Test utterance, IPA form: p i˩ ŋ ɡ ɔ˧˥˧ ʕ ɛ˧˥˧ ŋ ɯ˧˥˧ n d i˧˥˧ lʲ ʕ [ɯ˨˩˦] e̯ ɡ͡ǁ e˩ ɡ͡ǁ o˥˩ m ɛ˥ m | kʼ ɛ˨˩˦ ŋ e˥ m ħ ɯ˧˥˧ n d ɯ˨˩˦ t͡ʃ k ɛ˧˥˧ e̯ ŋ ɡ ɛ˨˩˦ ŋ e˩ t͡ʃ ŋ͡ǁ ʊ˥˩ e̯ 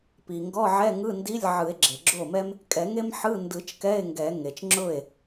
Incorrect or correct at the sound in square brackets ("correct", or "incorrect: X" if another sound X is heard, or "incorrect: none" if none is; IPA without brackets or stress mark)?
correct